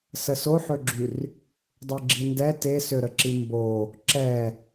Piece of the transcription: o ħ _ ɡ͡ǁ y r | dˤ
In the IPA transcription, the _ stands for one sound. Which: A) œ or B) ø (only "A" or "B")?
B